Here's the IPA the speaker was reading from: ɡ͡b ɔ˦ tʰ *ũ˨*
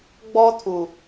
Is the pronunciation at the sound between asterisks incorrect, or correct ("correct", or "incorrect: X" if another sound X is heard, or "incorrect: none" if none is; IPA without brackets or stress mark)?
incorrect: u˨